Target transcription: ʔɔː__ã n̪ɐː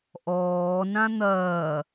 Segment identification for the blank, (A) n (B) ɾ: A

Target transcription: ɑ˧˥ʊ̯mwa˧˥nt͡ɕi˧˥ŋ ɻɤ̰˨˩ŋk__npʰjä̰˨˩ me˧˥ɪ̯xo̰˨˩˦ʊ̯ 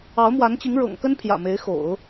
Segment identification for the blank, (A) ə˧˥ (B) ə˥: B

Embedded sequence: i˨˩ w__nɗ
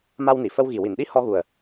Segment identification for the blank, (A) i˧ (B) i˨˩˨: B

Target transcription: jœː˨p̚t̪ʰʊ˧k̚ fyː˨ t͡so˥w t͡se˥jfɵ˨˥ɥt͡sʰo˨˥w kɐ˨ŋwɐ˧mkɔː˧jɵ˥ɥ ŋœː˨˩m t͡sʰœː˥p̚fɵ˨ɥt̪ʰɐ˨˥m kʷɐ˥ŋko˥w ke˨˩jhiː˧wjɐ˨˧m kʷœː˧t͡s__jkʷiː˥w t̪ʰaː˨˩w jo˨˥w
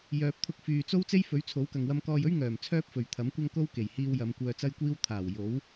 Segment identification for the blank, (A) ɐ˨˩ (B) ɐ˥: B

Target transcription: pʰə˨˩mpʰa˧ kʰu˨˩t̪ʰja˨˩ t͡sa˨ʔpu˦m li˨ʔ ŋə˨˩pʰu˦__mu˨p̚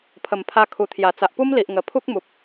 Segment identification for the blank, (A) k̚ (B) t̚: A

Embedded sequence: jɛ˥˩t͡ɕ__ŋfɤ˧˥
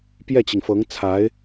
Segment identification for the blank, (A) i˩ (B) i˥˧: A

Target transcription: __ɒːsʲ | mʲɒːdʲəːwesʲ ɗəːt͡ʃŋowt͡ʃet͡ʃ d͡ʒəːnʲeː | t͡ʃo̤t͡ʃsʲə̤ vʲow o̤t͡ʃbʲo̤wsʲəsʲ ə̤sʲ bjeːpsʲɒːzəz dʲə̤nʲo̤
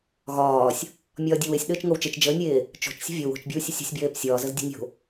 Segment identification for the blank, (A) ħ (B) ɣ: B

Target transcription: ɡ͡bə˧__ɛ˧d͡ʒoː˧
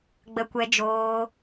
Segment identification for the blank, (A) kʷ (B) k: A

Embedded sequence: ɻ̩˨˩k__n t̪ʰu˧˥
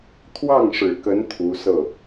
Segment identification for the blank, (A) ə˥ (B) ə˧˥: B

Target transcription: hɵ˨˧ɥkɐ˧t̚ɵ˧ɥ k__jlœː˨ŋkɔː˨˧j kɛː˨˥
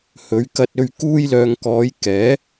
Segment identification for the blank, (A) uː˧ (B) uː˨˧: A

